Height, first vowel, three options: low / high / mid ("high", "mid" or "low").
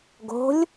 mid